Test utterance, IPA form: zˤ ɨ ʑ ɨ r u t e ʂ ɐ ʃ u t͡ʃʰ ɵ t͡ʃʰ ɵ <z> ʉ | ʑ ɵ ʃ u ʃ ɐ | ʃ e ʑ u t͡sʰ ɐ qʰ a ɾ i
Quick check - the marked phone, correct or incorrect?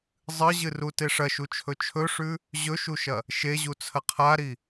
incorrect